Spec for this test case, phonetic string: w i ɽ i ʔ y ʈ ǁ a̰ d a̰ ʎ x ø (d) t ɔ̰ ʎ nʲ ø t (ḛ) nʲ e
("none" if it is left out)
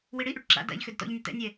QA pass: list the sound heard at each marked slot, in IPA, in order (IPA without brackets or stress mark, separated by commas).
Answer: d, ɛ̰